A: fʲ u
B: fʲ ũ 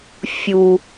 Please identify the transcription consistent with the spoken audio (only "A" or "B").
A